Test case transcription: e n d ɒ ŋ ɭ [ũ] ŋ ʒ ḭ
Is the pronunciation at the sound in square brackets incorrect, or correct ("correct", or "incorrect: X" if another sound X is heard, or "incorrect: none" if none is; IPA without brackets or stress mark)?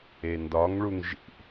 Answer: incorrect: u